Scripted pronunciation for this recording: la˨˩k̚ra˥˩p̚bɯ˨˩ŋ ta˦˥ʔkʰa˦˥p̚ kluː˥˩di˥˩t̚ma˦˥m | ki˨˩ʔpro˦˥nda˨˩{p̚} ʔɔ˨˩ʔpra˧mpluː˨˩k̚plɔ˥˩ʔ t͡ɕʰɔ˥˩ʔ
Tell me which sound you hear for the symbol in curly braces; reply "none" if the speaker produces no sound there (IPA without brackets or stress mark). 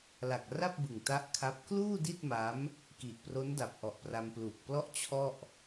p̚